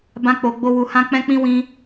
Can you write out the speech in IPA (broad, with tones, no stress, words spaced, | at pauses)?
bã˦k͡po˧ ɡ͡bo˦wu˧ hã˦ k͡pɛ̃˦k͡pĩ˦ wĩ˧